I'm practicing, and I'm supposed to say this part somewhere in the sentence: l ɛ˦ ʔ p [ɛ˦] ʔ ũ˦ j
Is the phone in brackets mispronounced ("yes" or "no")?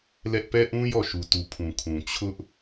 no